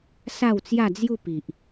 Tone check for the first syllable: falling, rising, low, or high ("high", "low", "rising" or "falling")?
falling